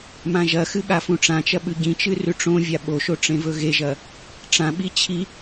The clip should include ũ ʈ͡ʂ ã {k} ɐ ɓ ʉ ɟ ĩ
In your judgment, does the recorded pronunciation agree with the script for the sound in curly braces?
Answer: no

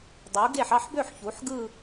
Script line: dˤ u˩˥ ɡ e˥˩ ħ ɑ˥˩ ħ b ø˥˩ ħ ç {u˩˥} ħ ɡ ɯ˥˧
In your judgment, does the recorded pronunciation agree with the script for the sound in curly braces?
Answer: yes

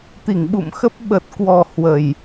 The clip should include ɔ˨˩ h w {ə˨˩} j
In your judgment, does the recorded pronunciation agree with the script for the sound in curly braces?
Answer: yes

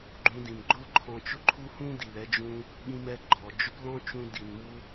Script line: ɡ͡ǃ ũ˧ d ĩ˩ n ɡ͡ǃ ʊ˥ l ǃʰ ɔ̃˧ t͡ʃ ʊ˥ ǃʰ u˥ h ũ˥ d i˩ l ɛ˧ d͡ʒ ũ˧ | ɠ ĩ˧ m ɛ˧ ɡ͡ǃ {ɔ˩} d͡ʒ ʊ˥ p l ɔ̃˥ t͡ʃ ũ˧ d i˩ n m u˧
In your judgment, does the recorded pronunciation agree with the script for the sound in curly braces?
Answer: yes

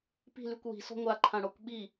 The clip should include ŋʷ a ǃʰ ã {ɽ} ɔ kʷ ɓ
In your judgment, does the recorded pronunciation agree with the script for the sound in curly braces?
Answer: yes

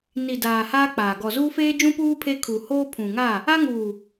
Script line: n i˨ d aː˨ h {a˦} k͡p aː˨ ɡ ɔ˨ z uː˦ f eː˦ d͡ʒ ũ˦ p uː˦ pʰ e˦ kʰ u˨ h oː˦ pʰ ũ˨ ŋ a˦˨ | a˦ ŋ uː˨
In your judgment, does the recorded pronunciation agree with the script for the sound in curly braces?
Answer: no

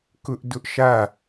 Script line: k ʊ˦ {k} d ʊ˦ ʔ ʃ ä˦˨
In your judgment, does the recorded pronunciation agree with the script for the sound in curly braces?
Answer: no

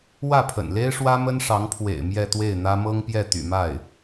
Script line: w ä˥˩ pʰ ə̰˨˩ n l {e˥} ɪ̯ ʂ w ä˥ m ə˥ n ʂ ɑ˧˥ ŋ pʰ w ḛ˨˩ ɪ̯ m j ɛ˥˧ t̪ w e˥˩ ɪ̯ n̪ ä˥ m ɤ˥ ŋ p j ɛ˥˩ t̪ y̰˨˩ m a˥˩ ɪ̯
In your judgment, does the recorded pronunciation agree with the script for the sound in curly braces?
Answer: yes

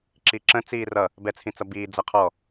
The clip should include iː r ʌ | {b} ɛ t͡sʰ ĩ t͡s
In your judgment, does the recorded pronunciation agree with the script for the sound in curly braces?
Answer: yes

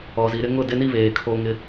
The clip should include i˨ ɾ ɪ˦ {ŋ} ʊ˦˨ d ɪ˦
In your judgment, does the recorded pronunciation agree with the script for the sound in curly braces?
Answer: yes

